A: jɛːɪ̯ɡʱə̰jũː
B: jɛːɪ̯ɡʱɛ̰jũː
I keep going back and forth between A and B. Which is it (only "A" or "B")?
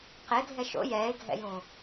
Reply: B